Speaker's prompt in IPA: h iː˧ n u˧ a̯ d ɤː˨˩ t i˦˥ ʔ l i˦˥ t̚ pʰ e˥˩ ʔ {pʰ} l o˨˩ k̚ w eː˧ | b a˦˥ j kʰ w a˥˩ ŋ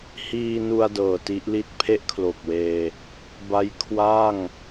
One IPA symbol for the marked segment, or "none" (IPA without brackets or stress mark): kʰ